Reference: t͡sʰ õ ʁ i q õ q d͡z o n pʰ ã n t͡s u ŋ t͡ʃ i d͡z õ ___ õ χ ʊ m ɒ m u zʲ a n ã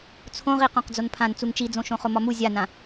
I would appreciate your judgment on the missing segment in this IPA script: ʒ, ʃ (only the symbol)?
ʃ